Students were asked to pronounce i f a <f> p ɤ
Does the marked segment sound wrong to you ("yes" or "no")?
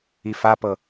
yes